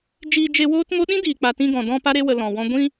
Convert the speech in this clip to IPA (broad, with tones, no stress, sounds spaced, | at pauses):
d͡ʒ iː˧ d͡ʒ e˧ w oː˦ t ŋ o˦ ɗ ĩ˦ d iː˨ k͡p a˨ t ĩ˧ ɡ ɔ̃˨ d ɔ̃˧ p a˦ ɾ e˦ w ə˧ l ɔ̃˨ w ɔ̃˦ ɡʷ ĩ˦